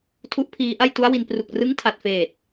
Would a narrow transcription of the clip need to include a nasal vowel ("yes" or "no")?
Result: no